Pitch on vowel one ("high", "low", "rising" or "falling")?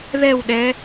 falling